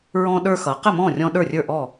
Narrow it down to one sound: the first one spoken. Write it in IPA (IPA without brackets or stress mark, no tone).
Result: ɹ